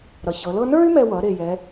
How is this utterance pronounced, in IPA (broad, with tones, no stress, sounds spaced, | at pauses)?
ɾ ʌ˩˧ ç ɤ˩˧ l ɤ˥ n ə˞˥ y̯ m ɛ˧ w ʌ˩˧ ɾ e˧˩ j ɛ˩˧